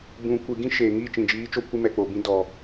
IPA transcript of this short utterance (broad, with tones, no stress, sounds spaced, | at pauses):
b ũ˨ kʷ ɨ˨ ɡ ĩ˦ ʃ eː˨ ŋ iː˦˨ t͡ʃ ĩ˨ d͡ʒ iː˨˦ t͡ʃ o˧ kʷ ɨ˧ m ɛ˨ k͡p o˨ b ĩ˧ d ɔ˨